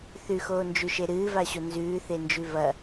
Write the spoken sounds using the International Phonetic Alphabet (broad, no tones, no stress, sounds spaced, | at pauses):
θ ʉ x oː n d͡ʒ ʉ ʃ e ɾ ɨː v a ɕ o n z ʉː θ e n d͡ʒ ʉ v ɐ